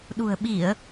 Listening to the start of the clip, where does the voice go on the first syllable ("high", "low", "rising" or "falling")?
low